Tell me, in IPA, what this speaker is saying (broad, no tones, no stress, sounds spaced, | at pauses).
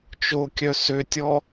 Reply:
t͡ʃ o kʲ œ s ø tʲ ɔ